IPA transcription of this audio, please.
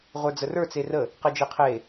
ʁʷ ə˞ d͡z ə r ə˞ t͡s e r ə | q e d͡ʒ e qʰ e

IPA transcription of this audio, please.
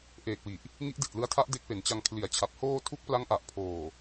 ʔ eː˨˩ k̚ w i˨˩ ʔ | ŋ i˦˥ ʔ d i˨˩ t̚ l ɯ˦˥ a̯ tʰ a˦˥ ʔ d e˦˥ k̚ p e˩˦ n t͡ɕ a˧ ŋ kʰ l i˩˦ a̯ t͡ɕʰ a˨˩ p̚ h oː˧ tʰ u˦˥ k̚ p l a˦˥ ŋ ʔ a˨˩ ʔ pʰ oː˨˩

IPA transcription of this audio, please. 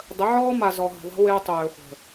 dˤ ə˨˦ ʕ ɔː˦ m a˨ z ɔ˨ ɦ ə̤˨ ðˤ ɛ̤˦ w ɪː˦ tˤ øː˨ χʷ ə̤˨

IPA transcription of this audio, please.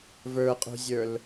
v ə˞ qʼ ṳ zʲ ə˞ l

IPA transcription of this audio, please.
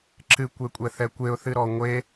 ǁ ɨ kʷ e kʷʼ ɛ θ ɛ kʷ e ʊ̯ θ ɨ ɾ ɔ ŋʷ e

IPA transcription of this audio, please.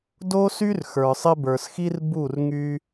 d o˦ s y˦ r x ə˞˨ sˤ ɪ˦ b ə˞˨ s x i˦ r b u˦˨ r ŋ y˧

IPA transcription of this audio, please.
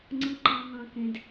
ŋ͡ǀ ɯ˨ ǃ ɑ̃˨ ŋ ɑ̃˨ k ẽ˨ d

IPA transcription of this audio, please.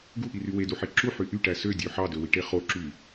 ɡ u ʔ i r y w e d u ħ e ǁ u ħ y ʔ y ʈ æ s ø dʲ ø ħ ɑ d ø w i ʈ e χ o ǁ y

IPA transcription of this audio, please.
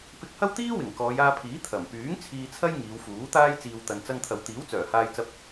p ɪ˧ k̚ h ɐ˥ w t̪ iː˥ w ɪ˨˩ ŋ k ɔː˨˧ j aː˧ pʰ iː˨˥ t̪ʰ ɐ˨˩ m p yː˨˥ ŋ t͡sʰ iː˧ t͡sʰ ɐ˥ j ŋ iː˨˧ w f uː˨˥ t̪ aː˥ j t͡s iː˨ w t̪ ɐ˨ n t͡s ɐ˧ ŋ t̪ʰ ɐ˨ w t̪ iː˨˥ w t͡s œː˨˩ h aː˧ j t͡s ɐ˧ p̚

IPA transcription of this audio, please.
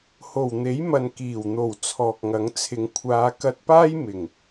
h o˨˩ w n̪ e˨˥ j m ɐ˨ n k iː˨˩ w n̪ o˨˩ w t͡sʰ ɔː˨ k̚ ŋ ɐ˨˥ ŋ t͡sʰ ɪ˨˧ ŋ kʷʰ aː˨˧ k ɐ˧ t̚ p aː˥ j m ɪ˨˩ ŋ

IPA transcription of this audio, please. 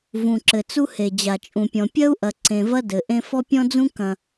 v ũ˨ ǁ ɘ˨ t͡s u˦ h e˨ d͡ʑ a˨ t͡ʃʼ ũ˨ pʲ ɔ̃˨ pʲ ɐ˦ u̯ ʔ ɐ˨ ǀ ẽ˨ v ɐ˦ d ɘ˨ ʔ ẽ˦ f ɔ˦ pʲ ɔ̃˦ d͡z ũ˦ k ɐ̃˦

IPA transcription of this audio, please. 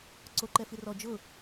ǀ o ǃ ɛ f i r ɔ d͡ʒ ʊ

